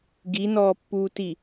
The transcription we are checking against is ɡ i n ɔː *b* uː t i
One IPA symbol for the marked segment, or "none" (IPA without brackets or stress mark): pː